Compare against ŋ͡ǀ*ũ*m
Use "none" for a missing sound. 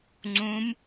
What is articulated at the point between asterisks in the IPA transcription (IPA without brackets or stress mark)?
ũ